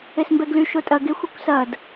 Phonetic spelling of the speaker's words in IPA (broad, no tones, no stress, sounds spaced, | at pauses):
e s m b ɛ ɡ l y ʃ o tʼ ɐ ɡ e xʷ ɐ kʷ s ɐ d